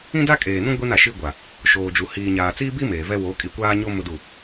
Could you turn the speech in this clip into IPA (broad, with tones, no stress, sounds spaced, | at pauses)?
ĩ˦ d a˦ kʼ eː˨ n ũ˦ ɡʷ i˦ n a˨ ʃ i˦ ɡʷ a˨ | ʃ oː˨ d͡ʒ u˨ h iː˨ ɲ aː˨ t͡s iː˦ b i˦ m eː˨ v ɛ˦ w o˨˦ kʼ i˨ kʷ aː˦ ɲ o˦ m ʊ˦ d u˦˨